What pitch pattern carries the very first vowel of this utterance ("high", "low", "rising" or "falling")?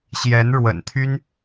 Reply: rising